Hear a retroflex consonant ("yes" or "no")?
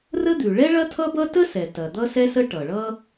yes